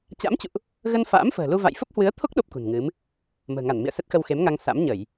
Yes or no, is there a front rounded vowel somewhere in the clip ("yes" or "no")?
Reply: no